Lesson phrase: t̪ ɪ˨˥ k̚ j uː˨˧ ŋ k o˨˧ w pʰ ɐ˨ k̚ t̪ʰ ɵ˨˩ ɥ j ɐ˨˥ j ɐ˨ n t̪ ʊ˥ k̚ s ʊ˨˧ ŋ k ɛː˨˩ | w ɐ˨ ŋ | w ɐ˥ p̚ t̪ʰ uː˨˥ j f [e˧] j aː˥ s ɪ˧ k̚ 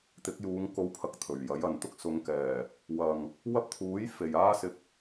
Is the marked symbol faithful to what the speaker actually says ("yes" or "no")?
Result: no